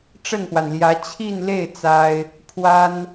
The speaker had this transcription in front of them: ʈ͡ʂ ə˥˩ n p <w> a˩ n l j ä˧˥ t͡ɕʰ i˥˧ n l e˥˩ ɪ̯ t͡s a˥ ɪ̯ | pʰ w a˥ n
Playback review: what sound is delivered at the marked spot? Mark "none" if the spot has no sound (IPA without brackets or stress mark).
w